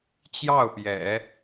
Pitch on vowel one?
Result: falling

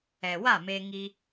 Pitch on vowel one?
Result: low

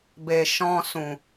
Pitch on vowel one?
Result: low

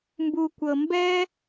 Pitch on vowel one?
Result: low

